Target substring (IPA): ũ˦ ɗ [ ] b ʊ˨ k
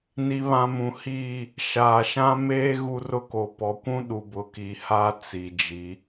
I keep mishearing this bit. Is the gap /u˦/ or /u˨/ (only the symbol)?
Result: u˨